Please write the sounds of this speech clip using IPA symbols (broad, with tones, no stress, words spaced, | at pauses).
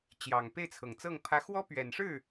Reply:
t͡ɕjɑ˨˩ŋ pe˥˩ɪ̯t͡sʰɤ˨˩ŋt͡sɤ˥˩ŋ pʰä˧˥xwɔ˥pɥɛ˨˩nʂɻ̩˥˩